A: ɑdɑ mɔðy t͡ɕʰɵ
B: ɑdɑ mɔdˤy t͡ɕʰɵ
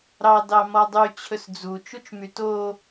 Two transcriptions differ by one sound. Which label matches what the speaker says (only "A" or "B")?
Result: B